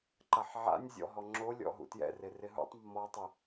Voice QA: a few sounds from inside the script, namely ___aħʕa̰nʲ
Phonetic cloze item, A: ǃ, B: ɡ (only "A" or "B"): A